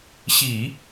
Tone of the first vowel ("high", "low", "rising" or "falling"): low